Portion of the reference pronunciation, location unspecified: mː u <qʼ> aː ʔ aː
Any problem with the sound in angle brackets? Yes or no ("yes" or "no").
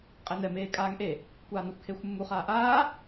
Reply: yes